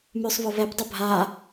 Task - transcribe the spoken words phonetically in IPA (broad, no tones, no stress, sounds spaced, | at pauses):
m ʉ sˤ β ʊ β ɛ p dˤ ʊ bʱ a